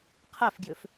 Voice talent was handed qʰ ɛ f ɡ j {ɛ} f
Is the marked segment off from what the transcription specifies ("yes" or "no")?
yes